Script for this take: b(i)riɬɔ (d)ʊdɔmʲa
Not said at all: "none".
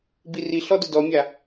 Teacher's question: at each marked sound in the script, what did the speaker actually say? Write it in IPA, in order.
i, d

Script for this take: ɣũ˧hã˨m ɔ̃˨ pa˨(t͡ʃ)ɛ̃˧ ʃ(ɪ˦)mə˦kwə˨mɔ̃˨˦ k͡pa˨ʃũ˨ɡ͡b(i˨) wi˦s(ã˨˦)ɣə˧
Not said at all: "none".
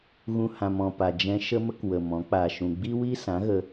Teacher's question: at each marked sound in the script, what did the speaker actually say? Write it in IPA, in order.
d͡ʒ, ə˦, i˦, ã˨˦

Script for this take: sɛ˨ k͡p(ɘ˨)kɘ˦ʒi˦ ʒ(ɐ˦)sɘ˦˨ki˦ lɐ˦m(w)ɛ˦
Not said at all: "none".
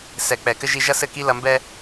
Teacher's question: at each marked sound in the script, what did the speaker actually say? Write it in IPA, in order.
ɛ˨, ɐ˦, b

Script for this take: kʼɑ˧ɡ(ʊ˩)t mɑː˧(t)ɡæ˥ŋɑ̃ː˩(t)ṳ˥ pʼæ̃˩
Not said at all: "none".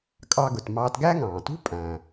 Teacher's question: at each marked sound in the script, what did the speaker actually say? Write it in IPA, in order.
ʊ˩, t, t

